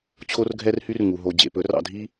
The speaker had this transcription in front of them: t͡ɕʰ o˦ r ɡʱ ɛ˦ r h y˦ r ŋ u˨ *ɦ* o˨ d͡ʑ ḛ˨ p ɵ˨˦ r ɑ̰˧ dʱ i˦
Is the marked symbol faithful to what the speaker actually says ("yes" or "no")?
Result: yes